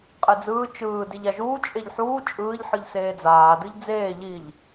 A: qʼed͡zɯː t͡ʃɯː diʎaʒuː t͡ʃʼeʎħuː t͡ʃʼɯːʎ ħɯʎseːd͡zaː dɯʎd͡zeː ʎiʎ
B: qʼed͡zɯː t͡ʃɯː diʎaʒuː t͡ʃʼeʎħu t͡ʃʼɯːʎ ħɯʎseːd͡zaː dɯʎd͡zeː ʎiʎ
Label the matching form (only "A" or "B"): A